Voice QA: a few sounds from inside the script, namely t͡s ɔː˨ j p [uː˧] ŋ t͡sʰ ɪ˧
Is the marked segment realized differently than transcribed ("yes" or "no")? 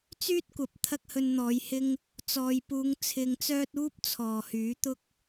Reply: yes